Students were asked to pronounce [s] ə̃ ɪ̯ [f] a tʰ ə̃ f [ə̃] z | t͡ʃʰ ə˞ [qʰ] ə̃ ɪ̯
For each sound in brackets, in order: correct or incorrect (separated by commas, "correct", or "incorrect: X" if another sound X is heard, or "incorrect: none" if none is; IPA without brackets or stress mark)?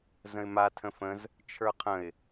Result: incorrect: z, incorrect: m, correct, correct